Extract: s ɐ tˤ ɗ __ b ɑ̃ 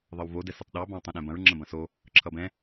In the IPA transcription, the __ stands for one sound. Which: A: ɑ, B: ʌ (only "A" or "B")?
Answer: A